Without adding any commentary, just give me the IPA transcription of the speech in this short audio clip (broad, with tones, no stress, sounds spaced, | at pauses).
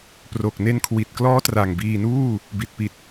p r o˨˩ k̚ n e˧ n kʰ w i˨˩ t̚ k l ɔː˦˥ t r a˨˩ ŋ b iː˧ n uː˥˩ | b i˨˩ t̚ p i˨˩ t̚